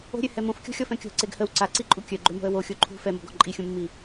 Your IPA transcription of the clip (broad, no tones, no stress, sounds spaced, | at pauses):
o̤ ɾʲ ø h ɛ m õ f kʲ ɔ̤ xʲ ɔ f ɛ̃ kʲ ɔ̤ ǀ e ɡ h ə w ǀ a ǀ i ǃʼ u kʲ œ ɡ͡ǃ ø m o̤ ə̯ w o xʲ o ǃʰ ṳ f ɛ m ɔ̤ ɡ ɔ̤ ǃʼ i xʲ õ mː i